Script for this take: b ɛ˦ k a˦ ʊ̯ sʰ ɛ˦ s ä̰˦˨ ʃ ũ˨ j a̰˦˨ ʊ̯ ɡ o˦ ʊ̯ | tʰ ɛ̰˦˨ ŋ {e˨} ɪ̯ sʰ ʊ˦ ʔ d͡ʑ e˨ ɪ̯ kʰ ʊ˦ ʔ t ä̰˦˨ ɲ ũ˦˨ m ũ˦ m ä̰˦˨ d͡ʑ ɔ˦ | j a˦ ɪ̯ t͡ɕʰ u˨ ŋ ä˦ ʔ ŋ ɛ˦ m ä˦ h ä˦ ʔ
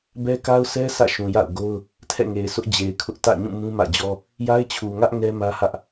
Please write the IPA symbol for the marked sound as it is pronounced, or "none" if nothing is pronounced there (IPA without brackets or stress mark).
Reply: e˨